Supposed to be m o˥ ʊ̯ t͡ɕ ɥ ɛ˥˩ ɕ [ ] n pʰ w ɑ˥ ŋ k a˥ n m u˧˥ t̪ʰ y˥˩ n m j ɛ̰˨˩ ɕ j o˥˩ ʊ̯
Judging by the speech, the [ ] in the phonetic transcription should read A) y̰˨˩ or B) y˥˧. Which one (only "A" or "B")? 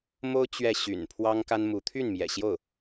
A